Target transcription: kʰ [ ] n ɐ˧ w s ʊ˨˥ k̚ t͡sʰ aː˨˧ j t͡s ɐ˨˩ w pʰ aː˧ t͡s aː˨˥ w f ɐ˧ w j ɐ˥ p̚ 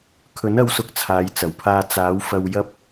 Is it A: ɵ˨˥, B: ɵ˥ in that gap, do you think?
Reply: A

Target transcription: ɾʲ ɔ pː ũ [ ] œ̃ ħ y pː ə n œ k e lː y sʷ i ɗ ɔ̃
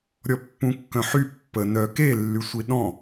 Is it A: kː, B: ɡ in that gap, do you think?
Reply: A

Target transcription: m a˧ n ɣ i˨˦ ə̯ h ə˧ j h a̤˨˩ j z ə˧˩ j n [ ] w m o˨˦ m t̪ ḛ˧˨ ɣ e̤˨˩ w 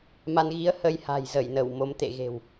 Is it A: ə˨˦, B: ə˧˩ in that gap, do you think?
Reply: B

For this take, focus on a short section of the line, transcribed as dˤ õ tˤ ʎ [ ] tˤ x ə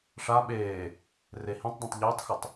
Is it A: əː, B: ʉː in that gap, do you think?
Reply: A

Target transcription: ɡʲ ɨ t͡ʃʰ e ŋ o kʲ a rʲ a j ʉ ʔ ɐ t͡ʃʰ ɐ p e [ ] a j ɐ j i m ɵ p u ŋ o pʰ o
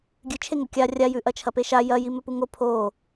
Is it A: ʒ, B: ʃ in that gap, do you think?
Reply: B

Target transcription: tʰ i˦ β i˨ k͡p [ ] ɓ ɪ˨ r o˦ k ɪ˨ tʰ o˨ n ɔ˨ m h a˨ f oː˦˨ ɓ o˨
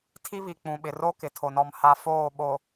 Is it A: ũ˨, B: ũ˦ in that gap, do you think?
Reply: A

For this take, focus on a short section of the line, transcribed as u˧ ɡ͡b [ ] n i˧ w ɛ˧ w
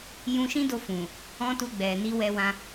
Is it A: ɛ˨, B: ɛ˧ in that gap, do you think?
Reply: A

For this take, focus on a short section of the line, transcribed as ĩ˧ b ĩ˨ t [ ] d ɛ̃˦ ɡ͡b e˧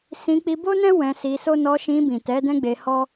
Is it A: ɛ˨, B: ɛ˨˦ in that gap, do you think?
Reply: B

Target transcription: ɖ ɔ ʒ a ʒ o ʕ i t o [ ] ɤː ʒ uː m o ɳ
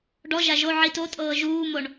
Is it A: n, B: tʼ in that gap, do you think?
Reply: B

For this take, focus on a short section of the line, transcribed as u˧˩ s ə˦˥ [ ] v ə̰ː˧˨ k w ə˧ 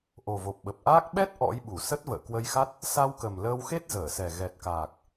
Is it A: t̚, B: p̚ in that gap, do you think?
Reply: A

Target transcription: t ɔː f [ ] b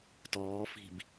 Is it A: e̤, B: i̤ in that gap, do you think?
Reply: B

